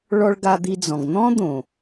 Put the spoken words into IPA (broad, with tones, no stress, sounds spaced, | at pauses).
ɭ ɔ˧ ɭ ɡ a˧ d̪ i˧ d͡z ɔ̃˨ ɡ n̪ ɔ̃˦ d̪ õ˨